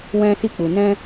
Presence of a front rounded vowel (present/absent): absent